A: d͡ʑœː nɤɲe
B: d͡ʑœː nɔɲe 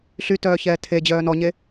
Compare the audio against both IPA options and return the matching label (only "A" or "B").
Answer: B